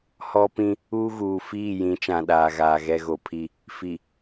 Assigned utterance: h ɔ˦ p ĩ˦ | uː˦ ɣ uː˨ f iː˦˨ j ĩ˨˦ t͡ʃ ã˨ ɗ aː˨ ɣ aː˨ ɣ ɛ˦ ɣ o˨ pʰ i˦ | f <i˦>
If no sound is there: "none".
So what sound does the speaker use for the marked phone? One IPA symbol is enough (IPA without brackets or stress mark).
i˨